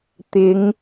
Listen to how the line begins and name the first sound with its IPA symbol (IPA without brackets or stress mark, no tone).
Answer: t̪